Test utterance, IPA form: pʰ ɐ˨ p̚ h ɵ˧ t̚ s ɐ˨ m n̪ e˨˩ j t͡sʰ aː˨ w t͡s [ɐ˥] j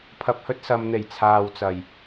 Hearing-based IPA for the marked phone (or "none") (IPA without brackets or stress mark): ɐ˨˩